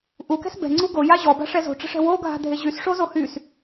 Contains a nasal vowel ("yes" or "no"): no